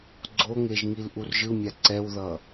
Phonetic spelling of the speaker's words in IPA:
ɡ͡ǀ o ŋ e ʒ ŋ i l ʔ u r ʒ ɯ mʲ a ǀ ɛ w ð ʌ

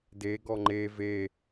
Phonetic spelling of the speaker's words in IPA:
d e ɡ ɔ ŋ͡ǃ e v e

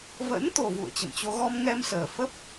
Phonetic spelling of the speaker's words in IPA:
v ə̰˧˥ n t̪ o˨˩ v ṵ˧˨ ə̯ t͡ɕ ə̰˧˨ m t͡ɕ o˧ ɣ ɔ˧ m ŋ ɛ˧ m s əː˨˩ f ə˦˥ p̚

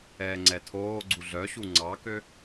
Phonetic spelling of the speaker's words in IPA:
ɛː ŋ͡ǀ ɛ tʰ oː ɡ͡ǀ u ɮ œ ɕ u ŋ͡ǀ ɑ k ø

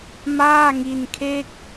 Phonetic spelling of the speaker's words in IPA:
m aː˥˩ ŋ i˧ n kʰ e˥˩ k̚

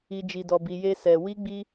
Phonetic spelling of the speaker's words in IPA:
i˧ d͡ʒ i˧ d ɔ˧ b i˧ j e˦ s ɛ˧ w i˦ ɡ͡b i˦

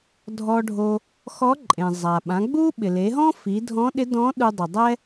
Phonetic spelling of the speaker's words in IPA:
dʱ ɔ˧ ɖʱ o˧ | x ɔ˧˥ ǃʼ ẽ˩ zˤ a˩ ɓ ã˩˧ ɡ͡b u˥ ɓ ɪ˩ l e˩˧ ɦ ɔ̃˥ f i˩˧ dʱ ɔ̃˧˥ ɗ ɪ˧˥ d ɔ̃˧˥ ɗ u˧ dˤ ɪ˩ dˤ ɛ˥

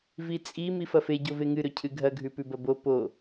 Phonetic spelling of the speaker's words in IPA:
v i t͡sʼ i m i f ɐ f e ɟ o v e ŋ ɨ ɾ ɵ cʰ ɨ ɡʱ ɐ ɡʱ ʉ p ʉ b ɐ b o p o

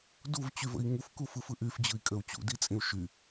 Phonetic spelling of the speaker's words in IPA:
d u v t͡ɕ y v ə̰ i̯ ŋ u f k u f ɯ f ɯ ʔ y f d͡ʑ ɯ i̯ kʼ ə u̯ t͡ɕ ṵ d i t͡sʼ ĩ u̯ ʃ y

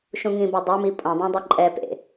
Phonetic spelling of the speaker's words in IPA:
ʃ ũ ŋ ĩ b ɛ dˤ e m i pʼ õ dˤ ã dˤ o ǃʼ ɛ p ḛ

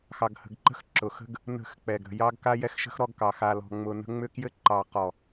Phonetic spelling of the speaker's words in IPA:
x ɑ˨ ɡ h ə̤˨ ɡ ǃ ə̤˦ x ǁ ʊ˨ x ə̤˦ ɡ | n ə̤˦˨ x k͡p ɛ˨ ɡ ɾ ə̤˨ j ɑ˦ ɡ k a˦ j ɛ˦ x ʃ ə̤˦ x ɾ ɔ˦ ɡ k ɑ˨ x a˨ l ɔ̤˨ ŋ͡m ʊ˨ n ə̤˦ ŋ͡m ʏ˦ k j ɘ˦ ǃ ɑ˨ q ɔ˨

